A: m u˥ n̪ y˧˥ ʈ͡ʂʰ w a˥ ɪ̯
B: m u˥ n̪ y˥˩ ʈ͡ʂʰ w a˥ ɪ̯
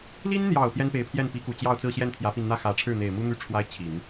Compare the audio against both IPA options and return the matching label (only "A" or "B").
B